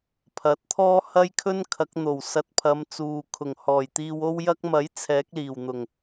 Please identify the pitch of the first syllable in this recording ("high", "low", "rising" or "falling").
rising